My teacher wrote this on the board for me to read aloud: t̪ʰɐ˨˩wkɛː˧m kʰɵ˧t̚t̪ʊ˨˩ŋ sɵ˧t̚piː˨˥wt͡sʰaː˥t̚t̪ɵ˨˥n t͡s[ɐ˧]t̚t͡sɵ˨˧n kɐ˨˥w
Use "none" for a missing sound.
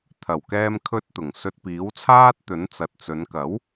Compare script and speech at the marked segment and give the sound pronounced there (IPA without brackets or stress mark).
ɐ˨